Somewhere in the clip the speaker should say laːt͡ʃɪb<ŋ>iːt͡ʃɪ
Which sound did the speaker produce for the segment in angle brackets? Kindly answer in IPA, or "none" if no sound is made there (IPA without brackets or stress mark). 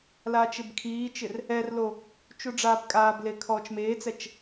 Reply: kʰ